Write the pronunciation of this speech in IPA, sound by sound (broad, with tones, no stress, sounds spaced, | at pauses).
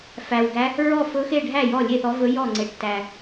f æ˨˩ w ɡ æ˧˥ | ɹ ɔ˥˩ f ɵ˧˥ x e˥˩ ɖʱ æ˥˩ j ɔ˥˩ lʲ e˥˩ θ ɔ˧˥ v ɵ˧˥ j ɔ˥˩ ŋ͡ǀ e˨˩ ʈ t æ˨˩